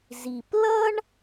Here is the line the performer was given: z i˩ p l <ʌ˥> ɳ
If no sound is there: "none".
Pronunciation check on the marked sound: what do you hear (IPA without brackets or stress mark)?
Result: ʌ˥